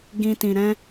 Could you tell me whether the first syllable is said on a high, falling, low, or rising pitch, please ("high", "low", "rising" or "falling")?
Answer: low